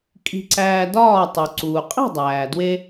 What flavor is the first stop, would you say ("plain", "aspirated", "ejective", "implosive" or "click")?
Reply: ejective